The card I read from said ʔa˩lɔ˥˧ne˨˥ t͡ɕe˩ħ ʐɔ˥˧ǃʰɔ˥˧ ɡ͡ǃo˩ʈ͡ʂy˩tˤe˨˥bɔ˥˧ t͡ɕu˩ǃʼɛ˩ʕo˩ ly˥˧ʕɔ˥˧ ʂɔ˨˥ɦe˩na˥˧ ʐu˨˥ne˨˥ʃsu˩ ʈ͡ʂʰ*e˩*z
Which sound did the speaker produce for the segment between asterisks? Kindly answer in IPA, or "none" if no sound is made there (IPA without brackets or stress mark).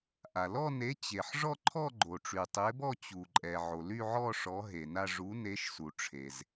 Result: e˩